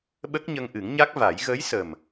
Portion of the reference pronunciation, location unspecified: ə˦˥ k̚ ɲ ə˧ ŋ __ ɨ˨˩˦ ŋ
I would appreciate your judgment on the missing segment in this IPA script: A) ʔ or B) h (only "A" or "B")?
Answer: A